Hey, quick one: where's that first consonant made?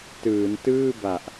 tongue tip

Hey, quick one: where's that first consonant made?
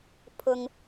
lips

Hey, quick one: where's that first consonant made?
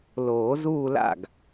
tongue tip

